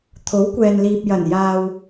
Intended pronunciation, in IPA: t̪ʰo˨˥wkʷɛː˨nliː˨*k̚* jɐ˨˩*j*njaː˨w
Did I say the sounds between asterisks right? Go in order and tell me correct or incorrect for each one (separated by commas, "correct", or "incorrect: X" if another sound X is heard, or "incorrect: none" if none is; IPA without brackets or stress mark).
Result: incorrect: p̚, incorrect: none